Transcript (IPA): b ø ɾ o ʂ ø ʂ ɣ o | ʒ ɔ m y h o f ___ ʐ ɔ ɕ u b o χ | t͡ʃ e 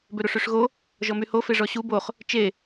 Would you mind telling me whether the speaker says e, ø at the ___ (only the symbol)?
e